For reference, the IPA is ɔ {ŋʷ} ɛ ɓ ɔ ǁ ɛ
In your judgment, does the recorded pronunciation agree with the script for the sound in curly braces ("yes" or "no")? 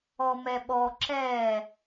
no